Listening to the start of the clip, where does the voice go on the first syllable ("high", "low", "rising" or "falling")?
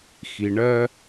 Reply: low